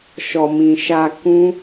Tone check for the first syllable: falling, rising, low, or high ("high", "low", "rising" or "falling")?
low